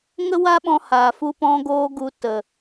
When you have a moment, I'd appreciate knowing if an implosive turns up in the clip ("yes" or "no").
yes